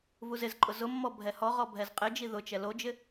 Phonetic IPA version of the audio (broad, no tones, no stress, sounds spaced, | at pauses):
v u z ɪ z ǃʼ ʊ z ʊ mː ɔ bʱ ɛ h ɔ ʁ ɔ bʱ ɛ z qʼ ɪ d͡ʒ i ð ʊ t͡ʃ ɛ l o d͡ʒ ɪ